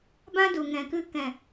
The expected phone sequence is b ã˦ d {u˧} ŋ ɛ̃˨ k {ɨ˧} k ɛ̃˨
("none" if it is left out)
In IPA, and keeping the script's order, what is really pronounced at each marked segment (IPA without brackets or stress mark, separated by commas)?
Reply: u˨, ɨ˧